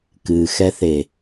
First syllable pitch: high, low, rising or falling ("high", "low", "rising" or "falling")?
low